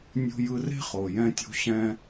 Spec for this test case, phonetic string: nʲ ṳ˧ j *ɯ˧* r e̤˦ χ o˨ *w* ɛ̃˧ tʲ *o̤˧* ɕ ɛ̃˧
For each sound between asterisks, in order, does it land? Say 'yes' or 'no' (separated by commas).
yes, no, yes